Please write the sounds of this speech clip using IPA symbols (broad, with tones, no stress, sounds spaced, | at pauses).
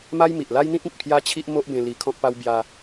m a˦ j m i˨ ʔ l a˦ j n̪ ĩ˦ t̚ ĩ˨ t̚ pʰ j a˦ t͡ɕʰ i˦ ʔ m o˦ ʔ b ẽ˧ l i˧ kʰ ɔ̃˦ k̚ p a˦ w b j a˧